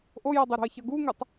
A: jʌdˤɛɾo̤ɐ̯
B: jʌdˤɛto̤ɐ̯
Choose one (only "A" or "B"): A